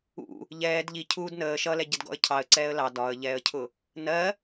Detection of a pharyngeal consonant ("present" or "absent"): absent